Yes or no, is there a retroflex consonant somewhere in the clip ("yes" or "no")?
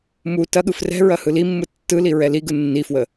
no